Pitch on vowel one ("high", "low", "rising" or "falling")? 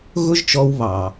high